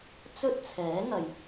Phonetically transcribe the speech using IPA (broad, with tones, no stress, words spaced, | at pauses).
t͡sɵ˥t̚t͡sʰɛː˨˥ŋɐ˨j